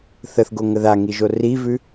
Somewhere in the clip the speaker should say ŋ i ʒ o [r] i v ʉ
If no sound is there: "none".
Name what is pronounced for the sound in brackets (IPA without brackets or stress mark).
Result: r